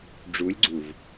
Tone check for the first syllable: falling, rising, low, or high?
rising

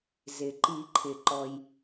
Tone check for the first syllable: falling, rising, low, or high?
low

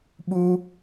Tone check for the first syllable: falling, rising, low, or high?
high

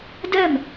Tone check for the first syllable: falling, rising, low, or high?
falling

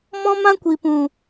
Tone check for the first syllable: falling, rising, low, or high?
high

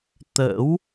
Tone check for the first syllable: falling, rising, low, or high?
rising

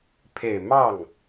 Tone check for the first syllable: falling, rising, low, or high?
low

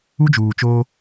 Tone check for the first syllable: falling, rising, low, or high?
high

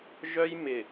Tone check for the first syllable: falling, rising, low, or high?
high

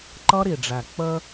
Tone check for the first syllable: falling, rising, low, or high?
high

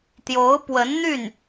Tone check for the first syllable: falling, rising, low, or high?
rising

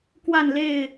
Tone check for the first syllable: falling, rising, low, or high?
falling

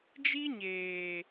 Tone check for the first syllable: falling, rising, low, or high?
high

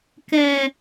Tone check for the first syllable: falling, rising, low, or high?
low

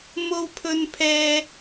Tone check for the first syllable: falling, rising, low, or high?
high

